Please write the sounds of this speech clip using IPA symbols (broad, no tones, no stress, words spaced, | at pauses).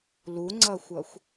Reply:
luŋ͡ǀʌxʷʌxʷ